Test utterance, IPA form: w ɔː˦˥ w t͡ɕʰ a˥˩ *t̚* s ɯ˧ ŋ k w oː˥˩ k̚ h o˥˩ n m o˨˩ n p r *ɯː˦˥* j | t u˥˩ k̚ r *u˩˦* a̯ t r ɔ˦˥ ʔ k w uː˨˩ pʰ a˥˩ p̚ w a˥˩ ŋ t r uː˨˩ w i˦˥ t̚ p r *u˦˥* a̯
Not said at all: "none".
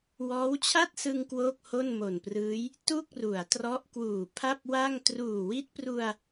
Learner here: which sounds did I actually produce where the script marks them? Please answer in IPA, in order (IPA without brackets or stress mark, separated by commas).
t̚, ɯː˦˥, u˩˦, u˧